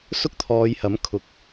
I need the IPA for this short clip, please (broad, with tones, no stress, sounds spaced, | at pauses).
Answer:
s ʊ˥ k̚ t̪ʰ ɔː˨˧ j h ɐ˨˥ m kʰ ʊ˨ k̚